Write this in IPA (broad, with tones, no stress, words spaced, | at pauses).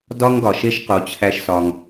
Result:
dɒ˦ŋɡɒ˨ ʃe˦ʃqo˨˦ t͡ɕʰæ˦ʃsɒ˧ŋ